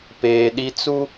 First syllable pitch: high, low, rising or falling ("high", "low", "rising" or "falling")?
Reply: low